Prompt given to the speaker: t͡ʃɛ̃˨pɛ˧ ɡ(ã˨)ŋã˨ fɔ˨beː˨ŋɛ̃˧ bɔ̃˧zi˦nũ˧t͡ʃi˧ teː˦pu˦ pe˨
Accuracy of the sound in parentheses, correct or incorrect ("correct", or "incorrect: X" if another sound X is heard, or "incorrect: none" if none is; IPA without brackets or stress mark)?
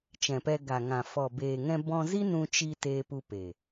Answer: incorrect: a˨